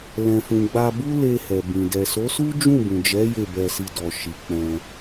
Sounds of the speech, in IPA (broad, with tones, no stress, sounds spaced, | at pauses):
l ɛ̃˨ f ũ˨ ɡ͡b a˧ b u˦ l e˧ h ɛ˨ b ĩ˨ d ɛ˨ s o˨˦ s u˦ d͡ʒ ũ˦˨ b ũ˨ d͡ʒ ɛ˨˦ j e˦˨ b ɛ˧ s i˧ d ɔ˨ ʃ i˨ k͡p ɛ̃˧